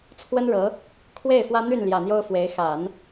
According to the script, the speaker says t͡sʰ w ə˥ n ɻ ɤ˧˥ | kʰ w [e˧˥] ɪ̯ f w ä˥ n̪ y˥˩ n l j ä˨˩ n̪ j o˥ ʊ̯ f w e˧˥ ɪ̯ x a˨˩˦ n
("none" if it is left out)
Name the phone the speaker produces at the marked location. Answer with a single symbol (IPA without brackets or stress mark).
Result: e˥˩